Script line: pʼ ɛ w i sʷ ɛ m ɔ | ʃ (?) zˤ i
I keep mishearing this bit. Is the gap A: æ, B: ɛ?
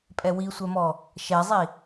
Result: B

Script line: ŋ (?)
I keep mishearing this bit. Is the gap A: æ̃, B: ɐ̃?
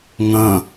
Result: B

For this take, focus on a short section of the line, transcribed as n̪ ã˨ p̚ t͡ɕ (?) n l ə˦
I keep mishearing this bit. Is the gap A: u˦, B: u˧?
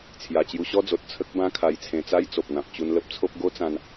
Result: B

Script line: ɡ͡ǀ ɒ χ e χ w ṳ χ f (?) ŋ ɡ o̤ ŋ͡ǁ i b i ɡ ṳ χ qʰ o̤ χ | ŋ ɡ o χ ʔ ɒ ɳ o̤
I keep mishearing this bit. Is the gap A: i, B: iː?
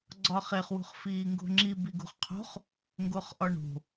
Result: B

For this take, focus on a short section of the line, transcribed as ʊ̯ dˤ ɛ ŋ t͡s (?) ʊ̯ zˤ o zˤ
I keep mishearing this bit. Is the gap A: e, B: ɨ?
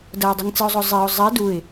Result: B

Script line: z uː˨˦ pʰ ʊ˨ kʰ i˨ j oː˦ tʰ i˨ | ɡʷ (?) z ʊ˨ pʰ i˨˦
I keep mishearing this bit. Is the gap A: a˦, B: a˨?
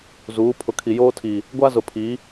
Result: A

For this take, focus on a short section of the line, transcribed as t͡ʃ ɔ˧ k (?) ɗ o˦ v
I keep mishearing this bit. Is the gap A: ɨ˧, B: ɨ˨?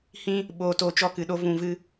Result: B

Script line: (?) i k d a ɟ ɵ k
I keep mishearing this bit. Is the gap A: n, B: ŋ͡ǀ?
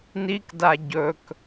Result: A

